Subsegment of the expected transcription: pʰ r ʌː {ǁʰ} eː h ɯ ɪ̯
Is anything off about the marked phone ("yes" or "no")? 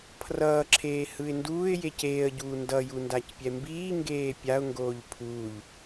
no